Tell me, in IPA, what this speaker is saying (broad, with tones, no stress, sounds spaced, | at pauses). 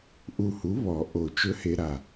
ʔ u˧˩ h u˩˥ β ɔ˨˩˦ ʔ o˧˩ t͡ʃ ɵ˧˥ h e˧ ɾ a˧˩